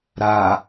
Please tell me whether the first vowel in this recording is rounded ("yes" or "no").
no